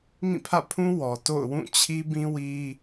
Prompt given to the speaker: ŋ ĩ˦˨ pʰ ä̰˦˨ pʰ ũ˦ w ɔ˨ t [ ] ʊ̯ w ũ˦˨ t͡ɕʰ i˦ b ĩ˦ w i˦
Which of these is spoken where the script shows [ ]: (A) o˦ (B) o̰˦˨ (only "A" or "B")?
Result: B